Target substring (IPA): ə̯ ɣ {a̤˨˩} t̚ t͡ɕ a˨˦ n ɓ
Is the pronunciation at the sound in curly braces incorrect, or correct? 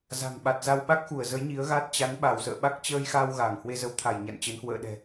incorrect: a˦˥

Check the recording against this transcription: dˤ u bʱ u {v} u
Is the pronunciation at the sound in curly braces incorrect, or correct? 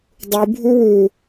incorrect: w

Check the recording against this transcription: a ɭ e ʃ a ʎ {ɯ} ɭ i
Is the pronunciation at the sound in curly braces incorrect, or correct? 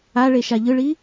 correct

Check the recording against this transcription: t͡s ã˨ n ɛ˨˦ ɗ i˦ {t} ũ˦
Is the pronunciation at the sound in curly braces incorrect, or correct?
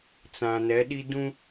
incorrect: d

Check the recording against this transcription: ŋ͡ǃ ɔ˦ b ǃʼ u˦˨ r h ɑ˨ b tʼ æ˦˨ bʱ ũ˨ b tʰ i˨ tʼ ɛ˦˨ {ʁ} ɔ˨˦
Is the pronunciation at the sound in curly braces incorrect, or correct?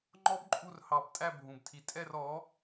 incorrect: r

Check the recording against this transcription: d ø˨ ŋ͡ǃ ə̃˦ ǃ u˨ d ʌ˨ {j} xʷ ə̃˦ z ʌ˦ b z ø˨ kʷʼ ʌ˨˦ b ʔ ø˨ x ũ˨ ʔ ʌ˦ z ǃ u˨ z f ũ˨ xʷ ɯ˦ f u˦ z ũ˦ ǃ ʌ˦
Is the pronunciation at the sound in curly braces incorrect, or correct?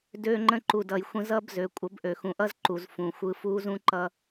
correct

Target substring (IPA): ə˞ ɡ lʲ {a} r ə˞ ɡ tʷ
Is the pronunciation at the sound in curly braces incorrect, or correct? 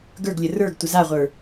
incorrect: ə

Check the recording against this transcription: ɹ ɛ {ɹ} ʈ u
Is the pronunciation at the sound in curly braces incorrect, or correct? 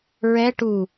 incorrect: none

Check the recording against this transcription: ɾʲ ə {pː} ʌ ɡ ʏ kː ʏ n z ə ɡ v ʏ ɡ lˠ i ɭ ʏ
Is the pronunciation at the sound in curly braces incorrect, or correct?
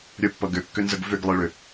correct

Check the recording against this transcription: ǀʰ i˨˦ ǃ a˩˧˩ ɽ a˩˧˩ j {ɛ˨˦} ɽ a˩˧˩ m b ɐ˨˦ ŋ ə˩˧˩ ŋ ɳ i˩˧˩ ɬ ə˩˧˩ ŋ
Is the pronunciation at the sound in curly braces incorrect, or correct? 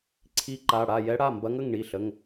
correct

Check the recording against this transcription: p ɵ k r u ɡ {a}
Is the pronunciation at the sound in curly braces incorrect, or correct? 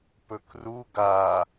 correct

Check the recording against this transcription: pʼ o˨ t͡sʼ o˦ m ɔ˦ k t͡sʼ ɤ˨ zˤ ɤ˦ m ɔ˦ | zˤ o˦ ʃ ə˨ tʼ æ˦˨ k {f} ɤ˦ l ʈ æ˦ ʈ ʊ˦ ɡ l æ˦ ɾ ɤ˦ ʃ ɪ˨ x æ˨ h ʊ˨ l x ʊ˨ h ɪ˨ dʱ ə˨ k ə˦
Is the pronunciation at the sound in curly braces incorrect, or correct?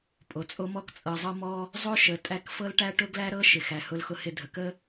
correct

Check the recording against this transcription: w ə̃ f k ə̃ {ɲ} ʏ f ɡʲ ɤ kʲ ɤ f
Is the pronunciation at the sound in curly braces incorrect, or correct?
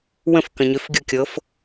correct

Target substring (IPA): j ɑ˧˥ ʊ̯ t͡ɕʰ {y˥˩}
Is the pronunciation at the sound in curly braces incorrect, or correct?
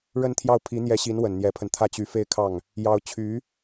incorrect: y˧˥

